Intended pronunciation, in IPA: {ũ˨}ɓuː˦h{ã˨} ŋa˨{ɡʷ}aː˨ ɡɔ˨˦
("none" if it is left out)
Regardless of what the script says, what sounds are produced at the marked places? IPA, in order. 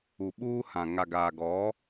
u˨, ã˨, ɡ

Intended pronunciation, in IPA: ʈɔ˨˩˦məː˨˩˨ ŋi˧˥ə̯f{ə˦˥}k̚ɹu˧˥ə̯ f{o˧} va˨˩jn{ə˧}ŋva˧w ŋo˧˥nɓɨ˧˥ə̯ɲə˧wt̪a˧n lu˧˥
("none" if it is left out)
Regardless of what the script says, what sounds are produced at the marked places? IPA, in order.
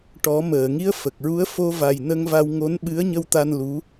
ə˨˩, o˧, ə˧

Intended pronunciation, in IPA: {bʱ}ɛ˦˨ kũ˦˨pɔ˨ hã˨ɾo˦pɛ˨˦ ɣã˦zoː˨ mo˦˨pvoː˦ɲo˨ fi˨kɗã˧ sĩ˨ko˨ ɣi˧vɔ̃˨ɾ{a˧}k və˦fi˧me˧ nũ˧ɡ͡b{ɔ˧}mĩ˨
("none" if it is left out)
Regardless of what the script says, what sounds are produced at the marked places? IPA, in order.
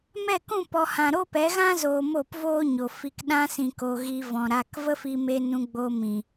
m, a˧, o˧

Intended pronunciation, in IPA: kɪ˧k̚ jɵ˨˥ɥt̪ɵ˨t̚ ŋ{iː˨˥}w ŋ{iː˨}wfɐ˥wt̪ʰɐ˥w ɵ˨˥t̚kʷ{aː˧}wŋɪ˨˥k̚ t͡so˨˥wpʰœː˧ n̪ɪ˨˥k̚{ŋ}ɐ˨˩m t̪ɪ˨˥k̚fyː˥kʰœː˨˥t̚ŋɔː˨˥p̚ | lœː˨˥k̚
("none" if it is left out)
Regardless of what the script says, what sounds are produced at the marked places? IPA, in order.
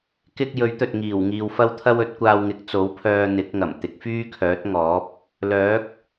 iː˨˩, iː˨, aː˧, ŋ

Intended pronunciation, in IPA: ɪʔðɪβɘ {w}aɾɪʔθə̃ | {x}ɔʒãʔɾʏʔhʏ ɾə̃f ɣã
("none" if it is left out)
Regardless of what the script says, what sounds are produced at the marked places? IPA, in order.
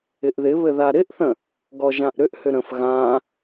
ð, ɡ

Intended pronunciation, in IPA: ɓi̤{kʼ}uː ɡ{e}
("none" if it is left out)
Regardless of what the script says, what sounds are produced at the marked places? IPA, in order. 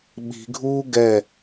ɡʱ, ɛ

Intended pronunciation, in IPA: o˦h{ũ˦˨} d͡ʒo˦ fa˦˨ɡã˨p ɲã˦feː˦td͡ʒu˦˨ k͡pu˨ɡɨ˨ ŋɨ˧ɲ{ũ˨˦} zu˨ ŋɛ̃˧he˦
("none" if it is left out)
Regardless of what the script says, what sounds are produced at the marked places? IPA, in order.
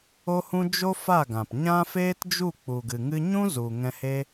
ũ˦, ũ˦

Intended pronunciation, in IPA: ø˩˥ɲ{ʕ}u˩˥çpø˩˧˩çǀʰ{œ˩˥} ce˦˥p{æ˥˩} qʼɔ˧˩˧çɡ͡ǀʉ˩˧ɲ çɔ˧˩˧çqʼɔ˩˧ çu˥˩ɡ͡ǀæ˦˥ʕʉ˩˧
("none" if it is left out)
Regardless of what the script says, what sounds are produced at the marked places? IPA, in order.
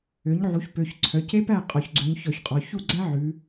ʕ, œ˩˥, æ˥˩

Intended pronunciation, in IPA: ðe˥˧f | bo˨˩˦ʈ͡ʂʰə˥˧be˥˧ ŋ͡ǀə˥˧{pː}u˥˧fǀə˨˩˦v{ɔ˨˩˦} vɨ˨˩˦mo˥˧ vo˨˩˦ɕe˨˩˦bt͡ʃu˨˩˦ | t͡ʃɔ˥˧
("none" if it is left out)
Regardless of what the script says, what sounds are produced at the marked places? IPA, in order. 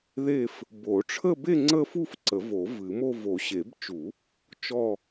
f, o˨˩˦

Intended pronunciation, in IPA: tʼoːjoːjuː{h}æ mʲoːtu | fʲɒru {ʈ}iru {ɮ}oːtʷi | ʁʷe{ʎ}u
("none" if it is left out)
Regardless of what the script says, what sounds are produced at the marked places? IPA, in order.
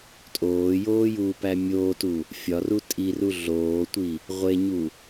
p, tʼ, ɮ, ɲ

